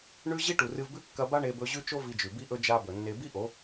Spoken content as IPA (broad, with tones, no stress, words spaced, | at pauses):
ɳʉ˦ ʑi˦ʈu˨rɨ˧vbʉ˦ kːɐ˧ba˦ɳe˧ bɵ˧ʑʉ˦t͡ʃo˦ vi˧d͡ʒʉ˨bi˦ ʔɵ˧d͡ʒa˧ bɵ˨nːe˧ bi˦ʔo˨˦